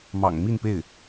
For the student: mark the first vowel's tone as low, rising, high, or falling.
low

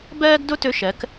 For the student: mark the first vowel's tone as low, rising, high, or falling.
high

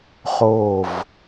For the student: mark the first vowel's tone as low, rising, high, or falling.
falling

